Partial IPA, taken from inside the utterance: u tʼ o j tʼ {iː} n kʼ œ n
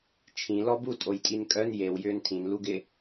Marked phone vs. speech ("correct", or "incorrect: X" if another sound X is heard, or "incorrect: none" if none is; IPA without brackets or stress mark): incorrect: i